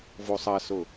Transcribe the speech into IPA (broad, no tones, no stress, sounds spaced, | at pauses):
v o sˤ ɐ s ʊ